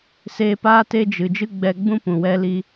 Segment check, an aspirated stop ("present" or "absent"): absent